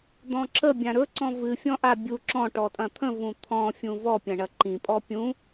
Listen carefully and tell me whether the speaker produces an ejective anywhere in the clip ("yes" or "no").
yes